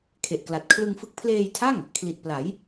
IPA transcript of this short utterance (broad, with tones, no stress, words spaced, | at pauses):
kʰe˨˩ʔkla˨˩t̚ kʰlɯ˧ŋfɯ˦˥k̚ pʰleː˧jtʰa˥˩ŋ | kʰli˨˩t̚pla˩˦j